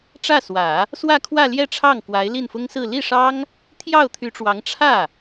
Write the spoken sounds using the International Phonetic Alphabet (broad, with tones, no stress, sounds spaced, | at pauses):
ʈ͡ʂ ä˥˩ s w ä˨˩˦ | s w ä˥˧ kʰ w ä˥˧ l j ɛ˥˧ ʈ͡ʂʰ ɑ˥˩ ŋ k w a˧˥ ɪ̯ l i˥˩ n f ʊ˥ ŋ s ɹ̩˥˧ l i˥˩ ʂ ɑ˥ ŋ | t̪ʰ j ɑ˥˩ ʊ̯ t̪ʰ y˧˥ ʈ͡ʂ w ɑ˧˥ ŋ ʈ͡ʂʰ ä˥˩